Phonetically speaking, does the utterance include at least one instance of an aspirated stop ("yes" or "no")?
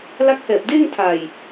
yes